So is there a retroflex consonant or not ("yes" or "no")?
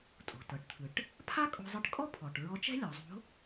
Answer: yes